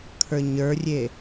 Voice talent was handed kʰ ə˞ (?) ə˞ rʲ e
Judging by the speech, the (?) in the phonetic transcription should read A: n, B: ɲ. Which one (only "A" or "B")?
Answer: B